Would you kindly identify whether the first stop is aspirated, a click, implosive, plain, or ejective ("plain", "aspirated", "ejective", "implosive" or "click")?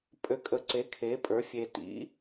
ejective